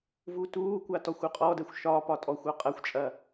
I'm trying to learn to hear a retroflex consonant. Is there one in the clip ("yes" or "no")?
no